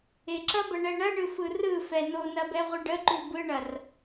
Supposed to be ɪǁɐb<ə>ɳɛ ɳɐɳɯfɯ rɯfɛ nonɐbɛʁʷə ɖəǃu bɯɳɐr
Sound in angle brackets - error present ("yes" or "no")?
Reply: no